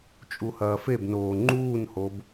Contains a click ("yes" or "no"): yes